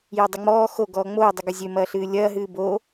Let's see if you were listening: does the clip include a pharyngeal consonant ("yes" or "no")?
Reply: no